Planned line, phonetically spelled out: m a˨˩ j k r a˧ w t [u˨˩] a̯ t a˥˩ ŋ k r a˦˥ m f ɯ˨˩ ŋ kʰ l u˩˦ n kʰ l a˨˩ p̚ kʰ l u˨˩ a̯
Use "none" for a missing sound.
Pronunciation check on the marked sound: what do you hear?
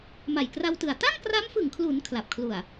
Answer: ɯ˨˩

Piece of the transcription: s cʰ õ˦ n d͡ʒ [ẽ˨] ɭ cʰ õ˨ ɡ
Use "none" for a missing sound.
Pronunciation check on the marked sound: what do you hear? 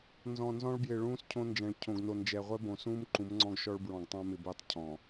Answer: ɛ̃˨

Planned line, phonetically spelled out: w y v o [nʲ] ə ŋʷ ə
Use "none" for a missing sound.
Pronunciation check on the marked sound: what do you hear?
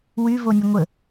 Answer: nʲ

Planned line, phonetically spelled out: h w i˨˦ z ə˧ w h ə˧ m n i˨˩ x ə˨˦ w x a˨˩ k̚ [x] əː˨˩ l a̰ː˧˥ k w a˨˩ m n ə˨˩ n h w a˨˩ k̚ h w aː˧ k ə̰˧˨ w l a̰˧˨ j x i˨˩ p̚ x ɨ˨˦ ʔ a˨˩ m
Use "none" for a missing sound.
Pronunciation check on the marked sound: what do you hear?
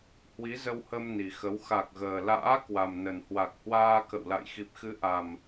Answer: ɣ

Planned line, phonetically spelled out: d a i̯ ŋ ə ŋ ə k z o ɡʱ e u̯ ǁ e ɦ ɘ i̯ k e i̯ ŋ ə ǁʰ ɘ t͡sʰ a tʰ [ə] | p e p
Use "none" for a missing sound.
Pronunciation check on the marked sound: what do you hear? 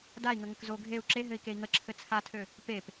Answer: ø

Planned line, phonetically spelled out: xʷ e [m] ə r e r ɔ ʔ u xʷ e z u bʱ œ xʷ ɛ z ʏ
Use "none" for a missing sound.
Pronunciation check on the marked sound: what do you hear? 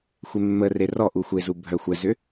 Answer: mː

